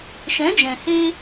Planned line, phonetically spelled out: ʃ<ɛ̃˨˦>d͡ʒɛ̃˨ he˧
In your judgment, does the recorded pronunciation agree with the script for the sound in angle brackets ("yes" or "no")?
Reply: yes